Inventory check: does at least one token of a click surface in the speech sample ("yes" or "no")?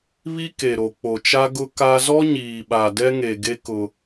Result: no